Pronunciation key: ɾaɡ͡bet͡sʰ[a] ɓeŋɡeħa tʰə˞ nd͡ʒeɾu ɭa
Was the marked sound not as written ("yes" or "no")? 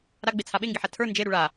no